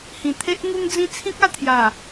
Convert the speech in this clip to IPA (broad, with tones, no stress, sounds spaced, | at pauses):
h ĩ˨˩ t̪ʰ e˦ ʔ ŋ u˦ ŋ d͡z ĩ˦ t͡sʰ ĩ˦ k̚ a˥˧ t̪ʰ j a˨˩